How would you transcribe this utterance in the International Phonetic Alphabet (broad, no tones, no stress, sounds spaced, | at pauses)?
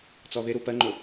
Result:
t͡s ɔ ð ɪ ɾ u p ɜ ŋ͡ǃ ʊ